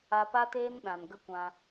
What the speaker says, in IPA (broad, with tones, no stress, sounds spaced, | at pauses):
a˧ p a˦ t eː˦ n ɗ ã˨ n ɡ ə˦ kʷ ã˧